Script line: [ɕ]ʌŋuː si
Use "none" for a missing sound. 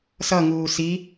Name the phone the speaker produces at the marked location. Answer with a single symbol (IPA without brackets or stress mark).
s